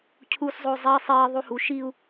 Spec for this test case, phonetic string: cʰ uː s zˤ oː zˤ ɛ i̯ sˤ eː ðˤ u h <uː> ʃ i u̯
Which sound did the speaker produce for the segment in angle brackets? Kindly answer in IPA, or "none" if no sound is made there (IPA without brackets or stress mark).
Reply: u